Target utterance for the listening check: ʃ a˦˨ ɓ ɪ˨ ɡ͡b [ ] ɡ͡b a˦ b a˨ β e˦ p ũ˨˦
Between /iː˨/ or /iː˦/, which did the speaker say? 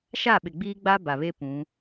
iː˦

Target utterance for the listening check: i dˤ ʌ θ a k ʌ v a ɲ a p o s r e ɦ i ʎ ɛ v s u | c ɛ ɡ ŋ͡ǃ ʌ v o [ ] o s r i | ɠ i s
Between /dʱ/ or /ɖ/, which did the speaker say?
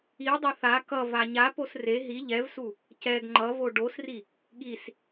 ɖ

